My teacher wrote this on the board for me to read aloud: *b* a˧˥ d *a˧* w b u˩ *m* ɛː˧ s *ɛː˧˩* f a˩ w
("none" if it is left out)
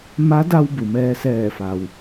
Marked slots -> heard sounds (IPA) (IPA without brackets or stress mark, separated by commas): m, a˧, m, ɛː˧˩